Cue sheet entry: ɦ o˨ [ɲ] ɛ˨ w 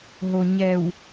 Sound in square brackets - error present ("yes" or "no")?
no